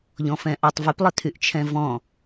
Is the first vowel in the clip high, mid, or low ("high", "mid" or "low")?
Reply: mid